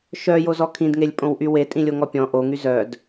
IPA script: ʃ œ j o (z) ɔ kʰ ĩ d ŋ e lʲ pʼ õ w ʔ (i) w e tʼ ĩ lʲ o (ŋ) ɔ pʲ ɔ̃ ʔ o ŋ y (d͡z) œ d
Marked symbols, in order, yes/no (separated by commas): yes, no, yes, no